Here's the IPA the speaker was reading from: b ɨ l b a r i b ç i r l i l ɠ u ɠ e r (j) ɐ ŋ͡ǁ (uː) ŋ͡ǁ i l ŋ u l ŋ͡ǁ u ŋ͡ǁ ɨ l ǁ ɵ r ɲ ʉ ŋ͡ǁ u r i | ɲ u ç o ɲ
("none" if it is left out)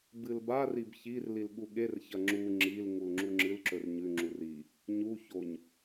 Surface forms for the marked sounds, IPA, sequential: ç, u

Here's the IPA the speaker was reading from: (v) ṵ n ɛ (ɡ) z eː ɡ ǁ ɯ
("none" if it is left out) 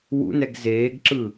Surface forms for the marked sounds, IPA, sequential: w, ɡ

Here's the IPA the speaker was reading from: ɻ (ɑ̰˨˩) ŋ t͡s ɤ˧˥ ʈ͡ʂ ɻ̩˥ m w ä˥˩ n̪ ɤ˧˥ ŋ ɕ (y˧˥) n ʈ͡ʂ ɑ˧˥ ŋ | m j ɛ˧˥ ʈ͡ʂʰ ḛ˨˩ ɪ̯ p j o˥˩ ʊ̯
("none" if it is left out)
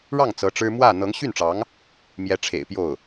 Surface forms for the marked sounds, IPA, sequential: ɑ˥˩, y˥˩

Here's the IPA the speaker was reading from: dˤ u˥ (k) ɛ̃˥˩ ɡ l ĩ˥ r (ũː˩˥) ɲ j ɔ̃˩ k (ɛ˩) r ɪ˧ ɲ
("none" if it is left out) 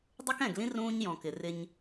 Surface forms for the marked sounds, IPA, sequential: k, ũː˥, ɪ˩

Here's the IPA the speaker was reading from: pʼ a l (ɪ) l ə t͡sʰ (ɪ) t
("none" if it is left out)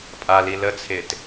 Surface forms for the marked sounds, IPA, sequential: i, ɪ

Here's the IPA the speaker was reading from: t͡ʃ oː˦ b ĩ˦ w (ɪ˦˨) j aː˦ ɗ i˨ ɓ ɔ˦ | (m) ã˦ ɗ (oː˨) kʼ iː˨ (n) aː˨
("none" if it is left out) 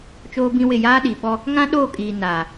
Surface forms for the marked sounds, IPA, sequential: ɪ˦˨, ŋ, oː˦˨, n

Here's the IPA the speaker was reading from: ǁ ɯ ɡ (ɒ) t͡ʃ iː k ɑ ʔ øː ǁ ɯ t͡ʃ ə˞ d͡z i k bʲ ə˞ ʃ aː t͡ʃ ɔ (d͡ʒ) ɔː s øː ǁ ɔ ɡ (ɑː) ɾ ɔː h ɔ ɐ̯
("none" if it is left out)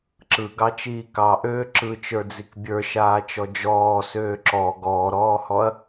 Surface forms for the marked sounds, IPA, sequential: ɑ, d͡ʒ, ɔː

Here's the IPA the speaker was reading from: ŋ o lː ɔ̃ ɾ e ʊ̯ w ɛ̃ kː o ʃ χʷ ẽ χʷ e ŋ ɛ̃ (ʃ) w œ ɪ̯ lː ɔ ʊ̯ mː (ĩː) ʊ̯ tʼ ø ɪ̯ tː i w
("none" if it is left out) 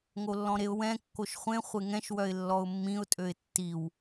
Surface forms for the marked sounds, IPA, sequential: ʃ, ĩ

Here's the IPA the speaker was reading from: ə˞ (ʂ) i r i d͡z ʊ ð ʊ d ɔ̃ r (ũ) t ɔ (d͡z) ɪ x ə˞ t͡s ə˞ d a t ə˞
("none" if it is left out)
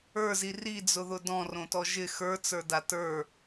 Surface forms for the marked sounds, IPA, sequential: z, õ, ʒ

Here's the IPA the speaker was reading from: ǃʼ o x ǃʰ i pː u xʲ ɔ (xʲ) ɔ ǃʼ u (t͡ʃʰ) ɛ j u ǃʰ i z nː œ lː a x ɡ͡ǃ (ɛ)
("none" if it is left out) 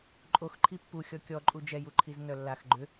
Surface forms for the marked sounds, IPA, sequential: kʲ, d͡ʒ, ʏ

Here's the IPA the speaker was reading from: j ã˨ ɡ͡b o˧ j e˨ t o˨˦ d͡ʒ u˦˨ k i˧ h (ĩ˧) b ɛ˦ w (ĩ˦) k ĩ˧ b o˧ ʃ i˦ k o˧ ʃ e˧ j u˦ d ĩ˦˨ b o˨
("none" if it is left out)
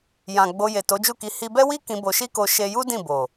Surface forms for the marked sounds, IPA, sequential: i˧, i˦

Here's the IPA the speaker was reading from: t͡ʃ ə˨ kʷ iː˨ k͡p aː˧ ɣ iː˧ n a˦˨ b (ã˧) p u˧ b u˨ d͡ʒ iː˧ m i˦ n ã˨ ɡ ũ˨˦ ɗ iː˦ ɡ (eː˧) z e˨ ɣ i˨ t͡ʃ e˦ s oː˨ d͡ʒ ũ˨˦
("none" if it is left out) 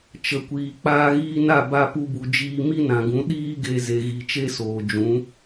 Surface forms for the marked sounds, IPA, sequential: a˧, e˧

